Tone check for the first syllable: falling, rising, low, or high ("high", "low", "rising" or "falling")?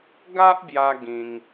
high